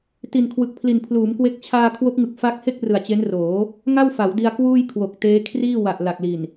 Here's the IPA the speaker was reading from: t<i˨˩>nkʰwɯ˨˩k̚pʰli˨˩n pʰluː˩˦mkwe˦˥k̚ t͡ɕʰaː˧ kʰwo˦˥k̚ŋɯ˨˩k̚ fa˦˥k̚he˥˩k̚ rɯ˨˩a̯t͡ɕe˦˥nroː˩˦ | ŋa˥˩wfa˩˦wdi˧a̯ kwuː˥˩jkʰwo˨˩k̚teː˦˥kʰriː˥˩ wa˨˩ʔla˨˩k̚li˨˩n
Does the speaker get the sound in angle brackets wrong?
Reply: no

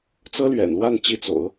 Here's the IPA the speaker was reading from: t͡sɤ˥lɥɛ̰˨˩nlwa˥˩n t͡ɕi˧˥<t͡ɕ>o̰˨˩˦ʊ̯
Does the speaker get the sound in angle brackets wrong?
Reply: yes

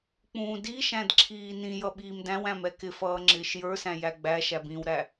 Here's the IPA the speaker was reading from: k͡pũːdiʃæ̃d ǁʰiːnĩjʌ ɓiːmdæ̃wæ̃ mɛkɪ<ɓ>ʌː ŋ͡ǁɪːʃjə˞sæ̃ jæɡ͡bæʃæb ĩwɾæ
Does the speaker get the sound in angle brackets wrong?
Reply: yes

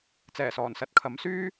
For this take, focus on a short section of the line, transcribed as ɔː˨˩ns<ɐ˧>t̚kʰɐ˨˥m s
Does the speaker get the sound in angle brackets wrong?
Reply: no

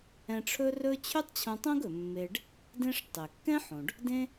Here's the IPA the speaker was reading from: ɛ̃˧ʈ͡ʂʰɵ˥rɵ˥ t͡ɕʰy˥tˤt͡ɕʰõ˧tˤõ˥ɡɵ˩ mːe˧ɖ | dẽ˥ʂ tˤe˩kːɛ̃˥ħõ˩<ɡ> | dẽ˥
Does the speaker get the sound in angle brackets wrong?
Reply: yes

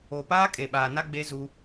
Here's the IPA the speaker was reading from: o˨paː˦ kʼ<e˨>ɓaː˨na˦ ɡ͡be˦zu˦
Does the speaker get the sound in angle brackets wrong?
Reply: no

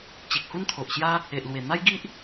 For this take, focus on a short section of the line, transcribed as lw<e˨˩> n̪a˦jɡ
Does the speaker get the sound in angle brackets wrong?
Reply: no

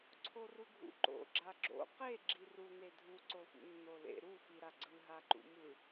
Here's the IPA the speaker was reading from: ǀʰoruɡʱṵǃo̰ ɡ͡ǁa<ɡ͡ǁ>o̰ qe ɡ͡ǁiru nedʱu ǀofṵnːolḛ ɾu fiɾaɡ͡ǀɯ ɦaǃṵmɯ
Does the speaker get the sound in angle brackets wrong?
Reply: no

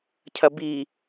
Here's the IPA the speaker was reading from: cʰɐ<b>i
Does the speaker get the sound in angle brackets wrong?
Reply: no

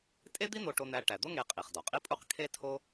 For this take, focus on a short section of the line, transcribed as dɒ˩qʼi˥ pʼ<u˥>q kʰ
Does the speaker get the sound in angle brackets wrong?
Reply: no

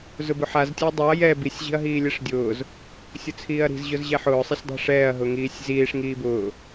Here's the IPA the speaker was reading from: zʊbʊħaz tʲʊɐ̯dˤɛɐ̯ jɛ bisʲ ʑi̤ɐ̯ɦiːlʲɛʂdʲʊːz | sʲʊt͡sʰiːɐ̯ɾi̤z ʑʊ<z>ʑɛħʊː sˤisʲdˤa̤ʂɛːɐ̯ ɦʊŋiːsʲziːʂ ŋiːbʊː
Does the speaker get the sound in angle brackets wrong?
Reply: no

